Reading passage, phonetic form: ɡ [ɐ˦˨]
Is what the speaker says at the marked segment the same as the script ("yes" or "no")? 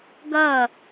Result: yes